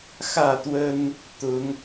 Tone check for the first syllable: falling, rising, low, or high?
falling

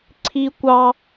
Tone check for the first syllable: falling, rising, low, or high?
high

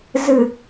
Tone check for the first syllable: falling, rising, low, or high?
low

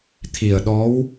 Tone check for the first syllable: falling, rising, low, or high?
low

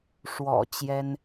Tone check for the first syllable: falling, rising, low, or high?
low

